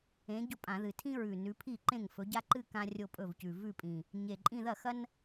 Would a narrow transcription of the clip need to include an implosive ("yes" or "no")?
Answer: no